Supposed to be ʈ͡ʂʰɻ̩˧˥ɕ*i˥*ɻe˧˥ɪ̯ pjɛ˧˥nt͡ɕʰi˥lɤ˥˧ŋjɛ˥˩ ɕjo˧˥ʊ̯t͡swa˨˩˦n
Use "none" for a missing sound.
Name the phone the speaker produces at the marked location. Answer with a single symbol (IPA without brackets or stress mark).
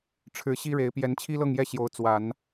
i˥